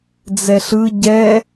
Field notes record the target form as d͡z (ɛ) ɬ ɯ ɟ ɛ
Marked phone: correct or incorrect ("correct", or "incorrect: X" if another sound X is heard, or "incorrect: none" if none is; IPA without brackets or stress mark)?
correct